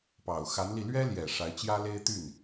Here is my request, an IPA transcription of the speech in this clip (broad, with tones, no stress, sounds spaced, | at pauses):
p ɑ˨˩ ʊ̯ x a˧˥ n l i˧ l ɥ ɛ˥ l j ɛ˨˩ ʂ a˧˥ ɪ̯ t͡ɕ j ä˥ l e˥ ɪ̯ t̪ y˥˩ n